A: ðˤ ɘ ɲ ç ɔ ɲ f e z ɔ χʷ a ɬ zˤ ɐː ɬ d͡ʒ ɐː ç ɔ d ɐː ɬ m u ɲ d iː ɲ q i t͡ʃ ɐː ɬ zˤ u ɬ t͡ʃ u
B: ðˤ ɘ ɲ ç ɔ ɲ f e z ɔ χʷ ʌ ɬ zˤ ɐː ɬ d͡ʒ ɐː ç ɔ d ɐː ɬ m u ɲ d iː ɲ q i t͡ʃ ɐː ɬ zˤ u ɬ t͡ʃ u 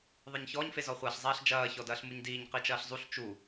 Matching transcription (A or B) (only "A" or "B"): A